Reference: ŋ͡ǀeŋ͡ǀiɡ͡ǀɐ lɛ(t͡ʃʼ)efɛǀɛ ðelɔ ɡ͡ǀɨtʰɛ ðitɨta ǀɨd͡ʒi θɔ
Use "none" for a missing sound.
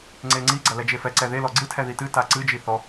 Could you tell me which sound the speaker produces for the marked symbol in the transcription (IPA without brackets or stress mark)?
d͡ʒ